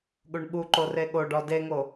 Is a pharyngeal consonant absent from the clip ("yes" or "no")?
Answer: yes